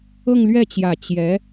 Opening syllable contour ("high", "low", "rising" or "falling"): falling